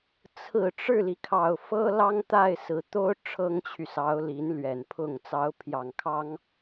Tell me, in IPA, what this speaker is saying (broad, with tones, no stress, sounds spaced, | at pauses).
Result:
t͡sʰ ɹ̩˨˩ ʈ͡ʂ ɻ̩˥˩ l i˩ kʰ ɑ˨˩ ʊ̯ f ɤ˥ l ɑ˥ ŋ t̪ a˥˩ ɪ̯ s ɹ̩˨˩ t̪ o˥ ʊ̯ ʈ͡ʂʰ ɤ˥ ŋ t͡ɕʰ y˨ s ɑ˧˥ ʊ̯ l i˧˥ n l ɥ ɛ˨˩ n pʰ ʊ˥˩ ŋ t͡s ɑ˧˥ ʊ̯ pʰ j ɑ˨˩ ŋ kʰ ɑ˥ ŋ